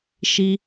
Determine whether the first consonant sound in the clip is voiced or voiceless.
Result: voiceless